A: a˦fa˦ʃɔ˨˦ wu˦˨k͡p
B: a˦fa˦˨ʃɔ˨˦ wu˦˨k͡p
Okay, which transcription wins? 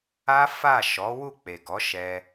B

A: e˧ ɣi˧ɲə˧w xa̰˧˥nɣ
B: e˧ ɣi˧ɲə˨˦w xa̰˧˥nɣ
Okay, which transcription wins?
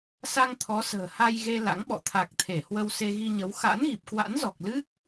B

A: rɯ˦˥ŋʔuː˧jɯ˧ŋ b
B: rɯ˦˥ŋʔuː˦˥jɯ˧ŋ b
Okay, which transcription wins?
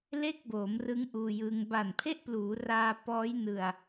A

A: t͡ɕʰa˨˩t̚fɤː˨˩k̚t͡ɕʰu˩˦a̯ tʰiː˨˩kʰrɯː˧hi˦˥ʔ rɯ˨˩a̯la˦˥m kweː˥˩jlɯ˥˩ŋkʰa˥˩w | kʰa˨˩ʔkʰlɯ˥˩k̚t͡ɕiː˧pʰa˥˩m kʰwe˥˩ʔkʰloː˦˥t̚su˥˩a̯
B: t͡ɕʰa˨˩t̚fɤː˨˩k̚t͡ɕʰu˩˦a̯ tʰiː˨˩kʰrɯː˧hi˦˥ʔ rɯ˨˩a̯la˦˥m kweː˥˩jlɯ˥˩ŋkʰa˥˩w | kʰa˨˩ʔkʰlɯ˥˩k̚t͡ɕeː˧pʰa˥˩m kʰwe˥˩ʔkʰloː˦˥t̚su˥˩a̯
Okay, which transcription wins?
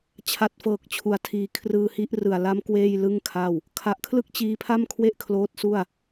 A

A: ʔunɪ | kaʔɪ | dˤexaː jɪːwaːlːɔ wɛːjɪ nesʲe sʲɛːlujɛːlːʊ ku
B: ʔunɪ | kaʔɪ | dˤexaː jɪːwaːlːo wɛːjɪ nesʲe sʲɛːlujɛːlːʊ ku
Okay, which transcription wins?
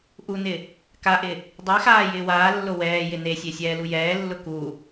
B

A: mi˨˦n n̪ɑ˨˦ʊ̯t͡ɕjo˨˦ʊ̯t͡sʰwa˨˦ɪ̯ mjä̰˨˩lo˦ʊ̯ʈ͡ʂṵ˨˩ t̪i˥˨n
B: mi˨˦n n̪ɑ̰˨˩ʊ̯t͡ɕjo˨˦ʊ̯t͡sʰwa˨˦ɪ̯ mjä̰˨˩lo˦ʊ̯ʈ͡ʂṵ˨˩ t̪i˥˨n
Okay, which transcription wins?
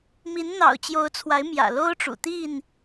B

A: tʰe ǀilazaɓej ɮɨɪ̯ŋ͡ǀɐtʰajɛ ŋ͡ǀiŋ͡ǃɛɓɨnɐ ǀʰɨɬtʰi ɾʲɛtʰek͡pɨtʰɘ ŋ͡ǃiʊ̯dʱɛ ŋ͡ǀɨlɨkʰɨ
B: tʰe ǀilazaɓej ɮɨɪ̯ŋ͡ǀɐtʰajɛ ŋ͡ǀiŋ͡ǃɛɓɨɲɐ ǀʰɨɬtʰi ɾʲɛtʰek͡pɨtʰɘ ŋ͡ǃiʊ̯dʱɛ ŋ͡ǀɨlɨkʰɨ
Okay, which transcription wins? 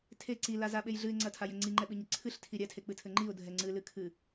B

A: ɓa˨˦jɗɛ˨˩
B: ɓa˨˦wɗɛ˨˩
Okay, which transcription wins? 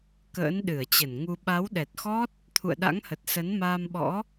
B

